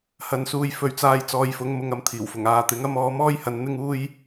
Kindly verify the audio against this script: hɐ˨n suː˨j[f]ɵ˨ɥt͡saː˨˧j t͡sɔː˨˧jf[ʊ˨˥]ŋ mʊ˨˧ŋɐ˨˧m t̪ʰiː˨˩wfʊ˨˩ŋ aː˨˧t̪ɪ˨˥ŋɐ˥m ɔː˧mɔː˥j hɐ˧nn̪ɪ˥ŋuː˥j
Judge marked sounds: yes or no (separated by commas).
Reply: yes, yes